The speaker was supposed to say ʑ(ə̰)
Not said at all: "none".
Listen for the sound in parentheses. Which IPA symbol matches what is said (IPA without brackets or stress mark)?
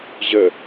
ə